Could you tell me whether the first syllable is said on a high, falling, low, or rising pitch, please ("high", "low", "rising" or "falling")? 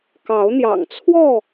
rising